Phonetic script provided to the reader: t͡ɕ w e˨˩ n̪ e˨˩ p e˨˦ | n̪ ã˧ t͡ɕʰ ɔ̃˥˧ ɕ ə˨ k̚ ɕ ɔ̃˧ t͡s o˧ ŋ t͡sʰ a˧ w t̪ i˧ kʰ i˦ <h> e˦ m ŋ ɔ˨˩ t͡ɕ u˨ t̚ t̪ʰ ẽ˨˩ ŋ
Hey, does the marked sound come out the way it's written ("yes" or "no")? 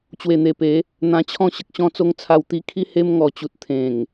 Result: yes